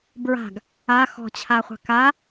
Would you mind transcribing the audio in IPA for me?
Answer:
bɹa̤ɡ | a xɔ̤t͡ɕʰaχʷa̤ ka

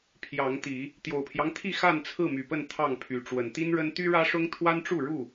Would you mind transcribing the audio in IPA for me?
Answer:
pʰjɑ˨˦ŋt̪i˨˦ | t̪jo˨˩ʊ̯pʰjɑ˦ŋt̪ʰi˥˨ xa˥˨nt͡sʰɹ̩˥˨my˨˩pə˥˨n t̪ʰɑ˥˨ŋpʰy˨˦ ʈ͡ʂwə˨˩nt̪i˦nɻə˦n t̪y˦ɻä˦ʂʊ˦ŋ t̪ʰwa˦nʈ͡ʂu˥˨ɻu˥˨

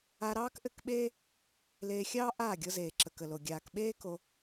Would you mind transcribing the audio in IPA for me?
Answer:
a˧ɾɑː˦kʔɘ˦˨kɓeː˦ | leː˧xʲɑː˦ ʔaː˦˨ɡʲɤ˧zeː˨ ǁə˨kə˨lo˨ ɡʲaː˨kɓeː˦ ko˧

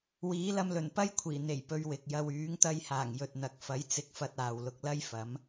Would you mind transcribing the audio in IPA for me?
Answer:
wiː˨˥lɐ˧mlɵ˨˩n pɐ˥jkʷʰiː˨˩ n̪e˨˩jpɵ˨ɥ wɪ˨k̚ jɐ˨wyː˨˥ŋt̪ɐ˧jhaː˨˩ŋ jɵ˨t̚n̪ɐ˨k̚ fɐ˨˥jt͡sɪ˨˥k̚fɐ˨t̚ aː˨wlʊ˧k̚ lɐ˥jfɐ˨˥m

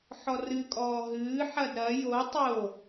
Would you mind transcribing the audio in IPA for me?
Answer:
ħɔrɨkʼɔː ɦɨːħɐd ɾɐ jo tˤo

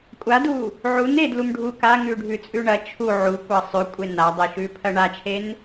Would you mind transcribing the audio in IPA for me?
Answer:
kʷʼadu | ʕun edlum ɖʱu kaŋʉɖʱʉt͡sʼʉ ɳɐ t͡ʃʰu ʕukʷɐ sˤʉkʷʼe nadˤeʃʉpʰɐ ɳat͡ʃʰen

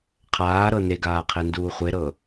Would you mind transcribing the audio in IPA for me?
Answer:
qʰaːɾɤ neɡaːqʰenduː χʷeɾɤ

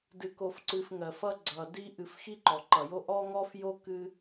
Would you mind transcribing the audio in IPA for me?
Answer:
dɨ˨ko˨f ǀɨ˨fŋɜ˩fʌ˦ ɡ͡ǀʌ˩di˦ʔɨ˨f xi˦ǃɔ˩ǃʌ˩jo˦ ʔɔ˥ŋɔ˥f jo˥kɨ˦

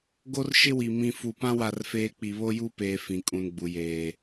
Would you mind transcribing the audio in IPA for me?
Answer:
ɡo˦rʃɪ˦wi˨ mĩ˨ fu˨pã˦ wa˦˨rfeː˦ k͡pi˨βo˦ju˦peː˨ fĩ˨kʼũ˨nɡ͡bu˨jeː˨

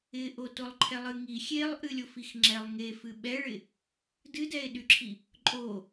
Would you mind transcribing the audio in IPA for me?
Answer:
ɪʔo tolˠǃʰɛlˠɨŋi xʲelˠʔɨlʲof ixŋ͡ǁɛlˠŋe fɨɓɛɭɪ | dɨdɛe̯ɗyǁʰi | ǃʼo

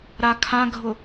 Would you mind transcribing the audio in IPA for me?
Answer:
ɾakʰãɡʱʊ

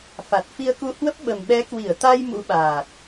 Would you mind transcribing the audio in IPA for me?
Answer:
fa˨˩t̚fi˧ə̯ku˧hwə˦˥p̚ ɓə˨˩mɓɛ˨˦ kwi˧˩ə̯t̪a˧j mṵ˧˥ɓaː˨˩t̚

